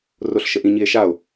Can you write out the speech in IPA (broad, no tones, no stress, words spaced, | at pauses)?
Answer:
roɬʃəʔĩ ɲie̯ʃao̯